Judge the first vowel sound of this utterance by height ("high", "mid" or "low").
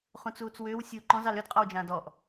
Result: high